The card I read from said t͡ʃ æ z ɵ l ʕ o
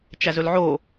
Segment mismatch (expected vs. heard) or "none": none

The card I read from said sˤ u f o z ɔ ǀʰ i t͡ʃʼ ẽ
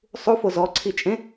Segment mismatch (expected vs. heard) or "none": none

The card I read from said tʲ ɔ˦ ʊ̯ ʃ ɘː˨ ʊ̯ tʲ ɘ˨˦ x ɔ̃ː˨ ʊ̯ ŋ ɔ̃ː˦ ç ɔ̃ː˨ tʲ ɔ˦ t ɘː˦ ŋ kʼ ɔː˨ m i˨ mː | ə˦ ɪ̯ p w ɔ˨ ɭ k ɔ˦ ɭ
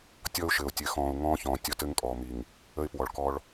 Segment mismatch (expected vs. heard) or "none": mː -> ŋ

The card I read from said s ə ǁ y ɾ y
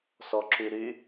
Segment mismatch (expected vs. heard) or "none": ə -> ɔ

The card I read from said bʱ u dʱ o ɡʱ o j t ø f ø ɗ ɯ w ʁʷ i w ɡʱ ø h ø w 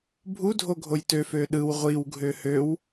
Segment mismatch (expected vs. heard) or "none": none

